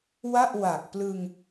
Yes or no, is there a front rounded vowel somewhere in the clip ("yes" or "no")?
no